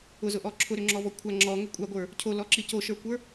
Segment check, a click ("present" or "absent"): present